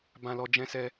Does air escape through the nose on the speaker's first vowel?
yes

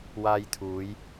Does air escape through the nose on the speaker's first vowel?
no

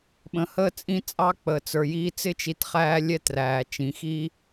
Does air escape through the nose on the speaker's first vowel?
yes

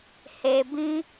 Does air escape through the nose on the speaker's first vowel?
no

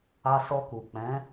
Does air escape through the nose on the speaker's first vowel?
no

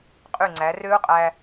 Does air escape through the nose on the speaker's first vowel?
no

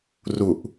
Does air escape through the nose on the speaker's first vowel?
no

